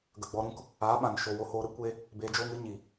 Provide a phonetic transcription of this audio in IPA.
ɡ ə˨ ɡ͡b ɔ˧ ɾ ũ˦ k | aː˨˦ ɓ ã˨ n ʃ oː˨ w o˧ h oː˧ ɾ ɨ˦ kʷ e˦ | b eː˧ d͡ʒ oː˦ ŋ ɨ˨˦ ɲ i˨

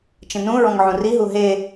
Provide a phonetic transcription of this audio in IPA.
t͡ʃ ə̃ n ũ ɹ ɔ̃ ŋ ʕ ũ r i ɦ u ɦ e

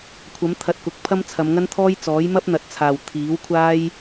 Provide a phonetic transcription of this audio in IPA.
kʷʰ ɐ˨˥ m t̪ʰ ɐ˧ t̚ k ʊ˨˥ k̚ pʰ ɐ˥ m t͡sʰ ɐ˨˧ m ŋ ɐ˥ n t̪ʰ ɔː˥ j t͡s ɔː˨˥ j m ɐ˥ p̚ n̪ ɐ˨ t̚ t͡sʰ aː˨ w t̪ʰ iː˨˥ w kʷʰ aː˥ j

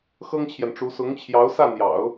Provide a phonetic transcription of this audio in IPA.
x ɤ˥ ŋ t͡ɕʰ j ɛ˨ n ʈ͡ʂ u˧˥ s ʊ˧˥ ŋ t͡ɕʰ j ɑ˧˥ ʊ̯ s ä˥˩ n̪ j ɑ̰˨˩˦ ʊ̯

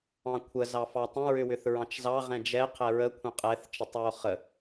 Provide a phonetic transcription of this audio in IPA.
ɑ̃ kʷʰ ə z ɑ f ɑ tˤ ə̃ ɹ ʏ w ʏ θ ɹ ɑ̃ t͡ʃ z ɑ ʁ ɛ̃ d͡ʒ ɛ qʰ ɛ ɹ ə kʷʰ ə̃ qʼ ɛ θ t͡ʃ ə tˤ w o χ ə

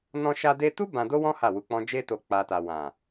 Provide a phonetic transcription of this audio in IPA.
n ɔ̃˧ ʃ a˧ d e˧ t u˦ b ã˧ d o˦ w ɔ̃˦ h a˦˨ w u˧ k͡p ɔ̃˦ d͡ʒ e˧ t o˨ k͡p a˨ t a˨ w ã˨

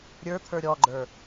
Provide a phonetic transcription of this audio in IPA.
ɾʲ ə˞ t̪ʰ ə˞ ɾʲ ɔ ɡ͡ǃ ə˞

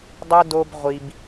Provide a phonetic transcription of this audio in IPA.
dˤ u˦ d o˦ b ʁʷ i˦ b

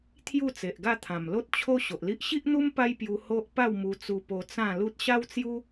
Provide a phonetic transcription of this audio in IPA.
t̪ʰ j u˥˧ t͡s e˨ ʔ ɡ a˥˧ t̪ʰ ã˨˩ m l o˦ t̚ t͡ɕʰ o˦ ɕ o˨ ʔ l i˦ ʔ ɕ i˦ ʔ n̪ u˦ m p a˦ j p j u˧ h o˦ ʔ p a˥˧ w m u˧ t͡s u˧ p o˧ t͡s ã˥˧ l u˦ t̚ ɕ a˦ w t͡s j u˦

